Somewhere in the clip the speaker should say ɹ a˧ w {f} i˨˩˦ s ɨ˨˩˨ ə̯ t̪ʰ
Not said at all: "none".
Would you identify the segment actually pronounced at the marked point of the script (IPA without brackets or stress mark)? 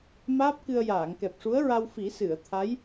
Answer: f